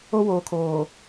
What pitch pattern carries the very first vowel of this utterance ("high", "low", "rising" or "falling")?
high